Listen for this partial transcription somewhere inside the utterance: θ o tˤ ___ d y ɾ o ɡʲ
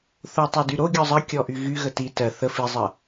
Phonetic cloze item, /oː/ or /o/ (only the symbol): o